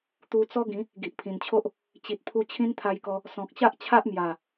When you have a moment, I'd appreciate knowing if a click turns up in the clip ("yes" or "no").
no